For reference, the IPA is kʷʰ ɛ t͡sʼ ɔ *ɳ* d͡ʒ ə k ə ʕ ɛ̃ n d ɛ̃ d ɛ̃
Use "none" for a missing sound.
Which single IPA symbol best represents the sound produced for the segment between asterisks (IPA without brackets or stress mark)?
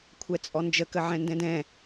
n